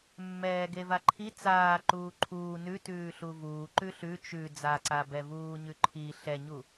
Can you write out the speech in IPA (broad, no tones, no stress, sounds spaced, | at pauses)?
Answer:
mː ɛː ɡ e v a ǃʰ i t͡s aː ǃ uː ǃʰ uː n ʉ t ʉː ɬ u v uː ǃ ʉ ɬ ʉ t͡ʃ ʉ d͡z a ǀ a b ɛ v uː ɲ ʉ ǃʰ i ɬ ɛ ɲ u